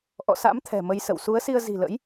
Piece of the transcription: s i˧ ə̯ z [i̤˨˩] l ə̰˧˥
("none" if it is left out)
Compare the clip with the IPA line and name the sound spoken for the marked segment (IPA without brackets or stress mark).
i̤˨˩